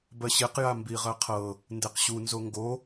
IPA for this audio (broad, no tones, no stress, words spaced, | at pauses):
bɜɕeq jambiʁɜqʰɤ | ndeqɕu nzoŋɡo